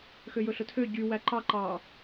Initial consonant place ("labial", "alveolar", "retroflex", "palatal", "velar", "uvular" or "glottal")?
velar